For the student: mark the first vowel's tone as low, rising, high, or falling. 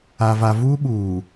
low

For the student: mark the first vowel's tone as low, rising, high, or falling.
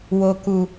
low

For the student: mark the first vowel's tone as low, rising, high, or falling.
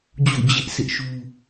falling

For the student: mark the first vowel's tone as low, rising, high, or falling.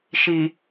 low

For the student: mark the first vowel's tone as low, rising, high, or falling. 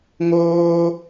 high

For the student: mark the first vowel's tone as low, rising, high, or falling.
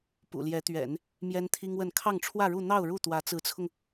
low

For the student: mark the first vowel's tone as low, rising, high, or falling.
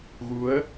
rising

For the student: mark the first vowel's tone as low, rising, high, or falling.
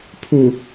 low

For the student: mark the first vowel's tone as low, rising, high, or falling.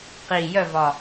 low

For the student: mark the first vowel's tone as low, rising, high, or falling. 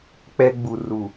high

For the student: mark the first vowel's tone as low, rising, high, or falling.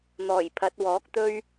low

